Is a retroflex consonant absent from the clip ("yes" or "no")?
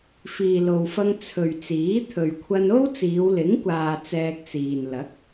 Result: yes